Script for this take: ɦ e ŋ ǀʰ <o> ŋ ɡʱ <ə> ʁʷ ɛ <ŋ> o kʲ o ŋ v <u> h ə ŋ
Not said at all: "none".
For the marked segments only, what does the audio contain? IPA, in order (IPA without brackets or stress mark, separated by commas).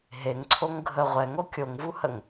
o, ə, ŋ, u